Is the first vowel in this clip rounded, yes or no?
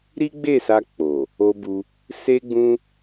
no